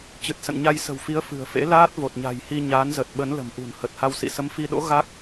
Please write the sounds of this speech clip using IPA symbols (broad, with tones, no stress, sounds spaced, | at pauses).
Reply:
t͡ɕ ɨ˨˩ t̚ s ə̰˧˨ n ɲ a˧ j s ə̤˨˩ w f i˨˦ ə̯ f ɨ̤˨˩ ə̯ f ḛ˧˥ l aː˦˥ t̚ v o˨˩ t̚ ɲ a̤˨˩ j h i˧ ɲ aː˨˦ n z ə˨˩ t̚ ɓ ə˨˦ n l ə̤˨˩ m ʔ ṳ˨˩ n h ə˨˩ t̚ h a˧ w s ḭ˧˨ s ə˨˦ m f i˧ ɗ o̰˧˥ ɣ a˦˥ k̚